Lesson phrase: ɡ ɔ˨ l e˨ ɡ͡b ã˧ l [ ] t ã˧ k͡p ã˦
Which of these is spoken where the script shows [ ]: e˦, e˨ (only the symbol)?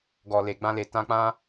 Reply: e˨